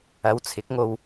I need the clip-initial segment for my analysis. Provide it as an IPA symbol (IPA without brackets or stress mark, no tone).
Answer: ɐ